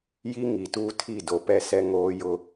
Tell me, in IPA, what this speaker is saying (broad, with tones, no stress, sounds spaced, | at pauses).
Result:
j i˦ ŋ i˨ t uː˦ tʰ i˦˨ d o˨ p ɛ˦ s ɛ˦ ŋ oː˦ j ʊ˦